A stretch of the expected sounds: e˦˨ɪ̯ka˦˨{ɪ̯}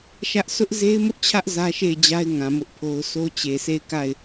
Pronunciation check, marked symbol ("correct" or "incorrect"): correct